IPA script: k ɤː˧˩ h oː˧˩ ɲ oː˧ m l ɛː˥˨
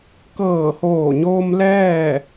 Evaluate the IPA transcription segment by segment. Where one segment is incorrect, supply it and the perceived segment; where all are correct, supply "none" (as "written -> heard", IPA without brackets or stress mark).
none